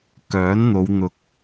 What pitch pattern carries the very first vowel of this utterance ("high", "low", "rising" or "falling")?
rising